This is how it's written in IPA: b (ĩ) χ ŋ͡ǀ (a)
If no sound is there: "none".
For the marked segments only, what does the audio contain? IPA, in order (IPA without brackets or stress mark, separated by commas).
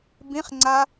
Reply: ĩ, a